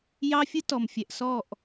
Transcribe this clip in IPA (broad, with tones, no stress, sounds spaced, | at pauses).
j ɑ˦ fʲ ɯ˦ t ɔ˨ m fʲ ɛ˨ ʔ s ɔ˦˨ ʔ